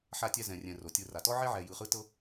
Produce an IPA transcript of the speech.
ħ a˦ tʲ ɛ˦ z ɛ̃˨ rʲ ɛ̃˨ r o˩ tʲ ɯ˨ r a˩ t ɔ˥ ʕ e˥ ʕ ɛ˨ j ɯ˨ χ ɯ˦ t ɤ˦

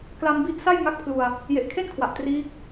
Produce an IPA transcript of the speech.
k l a˧ m b i˦˥ ʔ s a˥˩ j ŋ a˦˥ k̚ pʰ l u˧ a̯ | j e˨˩ ʔ kʰ e˥˩ n kʰ w a˨˩ ʔ t r iː˦˥ k̚

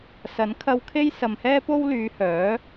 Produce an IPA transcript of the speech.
s ɐ˨˥ n kʰ ɐ˧ w kʰ e˥ j s ɐ˨ m h ɛː˥ p o˥ w l yː˨˧ h œː˨˥

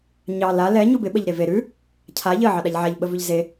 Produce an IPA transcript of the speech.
ɲ ɑ l a l ɛ ɲ u b ɪ ɓ ə ʎ ɾ e v e ɾ ʉ | cʰ a ʎ ə ʕ ɑ ɗ a ʎ ʕ a ʎ ɓ ə v ʉ ʎ z e

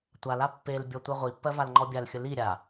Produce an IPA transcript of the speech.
tʷ a l a pː e l bʲ ɔ tʷ ɛ ʁʷ i pː ɜ v a l ŋ͡ǃ ɔ bʲ a l xʲ ə l i ɾʲ a

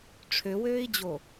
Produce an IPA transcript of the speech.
ʈ͡ʂʰ ø w øː i̯ d͡ʑ o

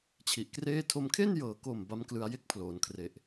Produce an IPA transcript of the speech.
t͡ɕʰ i˨˩ ʔ k r eː˥˩ tʰ o˧ m kʰ e˥˩ n j ɤː˨˩ k o˨˩ m b a˦˥ m k l ɯ˧ a̯ j e˥˩ k̚ pʰ l oː˩˦ n kʰ r e˨˩ ʔ

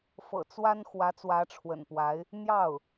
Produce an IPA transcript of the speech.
f ɤ̰˨˩ t͡s w a˥ n x w ä˧˥ t͡s w ä˧˥ ʈ͡ʂʰ w ə̰˨˩ n p w a˧˥ ɪ̯ | n̪ j ɑ˥˩ ʊ̯

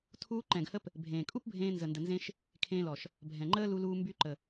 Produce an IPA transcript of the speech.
tʰ uː˦ ǃ ɛ̃˨ ɡ h ə˧ p | bʱ ẽː˨ kʼ u˦ p bʱ ẽː˧ n z ə˨ n d ə˨ n z ẽ˧ ʃ | kʰ ẽː˧ l ɔ˨ ʃ | bʱ ɛ̃˨ ŋ͡ǃ əː˦ l u˧ l uː˧ m b y˧ ǃ ə˨

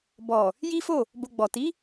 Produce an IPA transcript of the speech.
b ɔ˨ | j i˦ f o˦˨ | b o˧ ɡ͡b ɔ˨ t i˨˦

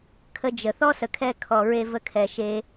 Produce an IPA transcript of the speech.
kʰ ə˧ d͡ʒ ə˨ θ ɔ˦ s ə˨ kʰ ɛ˧ kʰ ɔ˨ ɹ e˧ v ə˧ kʰ ɛ˨ ʃ e˧

